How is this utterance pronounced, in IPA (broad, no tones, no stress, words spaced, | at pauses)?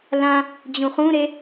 lã | d͡ʑũχũɾe